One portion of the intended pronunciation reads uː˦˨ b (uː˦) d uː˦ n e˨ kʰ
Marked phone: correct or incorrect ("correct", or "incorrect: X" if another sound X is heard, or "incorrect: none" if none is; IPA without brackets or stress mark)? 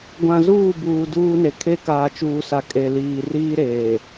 incorrect: uː˨